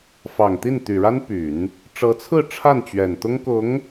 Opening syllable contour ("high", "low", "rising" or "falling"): low